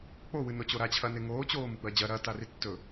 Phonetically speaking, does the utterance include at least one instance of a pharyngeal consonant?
no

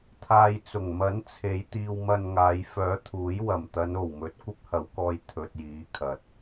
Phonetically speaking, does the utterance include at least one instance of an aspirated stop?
yes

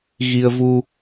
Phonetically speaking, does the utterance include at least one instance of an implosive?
no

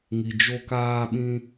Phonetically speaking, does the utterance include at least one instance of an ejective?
no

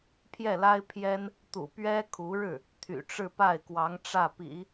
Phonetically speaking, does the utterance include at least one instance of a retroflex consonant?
yes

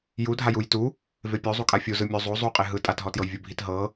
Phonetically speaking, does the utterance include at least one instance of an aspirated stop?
no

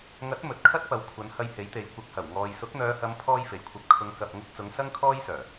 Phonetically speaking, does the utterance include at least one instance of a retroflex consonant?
no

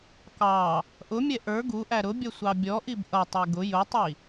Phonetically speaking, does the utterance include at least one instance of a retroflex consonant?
no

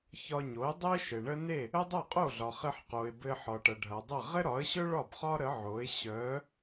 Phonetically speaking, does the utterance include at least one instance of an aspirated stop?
no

